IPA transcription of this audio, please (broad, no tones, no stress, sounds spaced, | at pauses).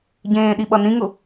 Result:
ɟ ẽː ɗ i ɓ ʌ n ĩ ŋ ʊ